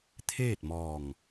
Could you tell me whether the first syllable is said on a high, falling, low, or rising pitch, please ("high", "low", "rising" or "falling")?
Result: falling